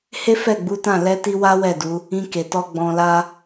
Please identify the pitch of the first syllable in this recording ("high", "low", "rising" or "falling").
high